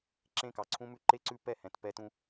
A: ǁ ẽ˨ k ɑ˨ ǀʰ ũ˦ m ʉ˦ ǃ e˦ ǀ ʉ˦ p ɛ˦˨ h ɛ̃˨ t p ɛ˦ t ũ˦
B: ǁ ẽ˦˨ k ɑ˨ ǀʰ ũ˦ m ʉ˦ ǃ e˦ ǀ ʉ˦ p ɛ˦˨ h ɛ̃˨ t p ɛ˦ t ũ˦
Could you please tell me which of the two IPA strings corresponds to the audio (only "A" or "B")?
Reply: B